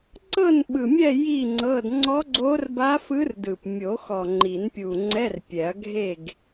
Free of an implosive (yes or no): no